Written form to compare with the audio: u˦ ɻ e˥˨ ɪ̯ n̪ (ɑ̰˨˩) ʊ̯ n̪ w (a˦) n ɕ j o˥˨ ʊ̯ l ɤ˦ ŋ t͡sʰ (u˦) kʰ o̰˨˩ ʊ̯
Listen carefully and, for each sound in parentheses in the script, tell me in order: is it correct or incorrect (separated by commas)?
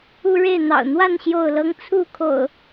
correct, incorrect, incorrect